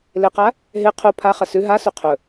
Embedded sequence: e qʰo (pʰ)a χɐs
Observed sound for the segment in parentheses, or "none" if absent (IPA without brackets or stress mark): pʰ